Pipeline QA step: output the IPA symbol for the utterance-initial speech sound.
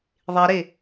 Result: ðˤ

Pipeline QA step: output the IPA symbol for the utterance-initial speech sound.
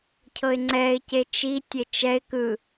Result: cʰ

